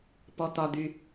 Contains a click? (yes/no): no